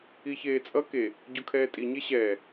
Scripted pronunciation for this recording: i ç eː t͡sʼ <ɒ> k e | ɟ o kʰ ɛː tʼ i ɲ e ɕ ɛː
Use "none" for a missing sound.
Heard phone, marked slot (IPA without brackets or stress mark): ʌ